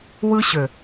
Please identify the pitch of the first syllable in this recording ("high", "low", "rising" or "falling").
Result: high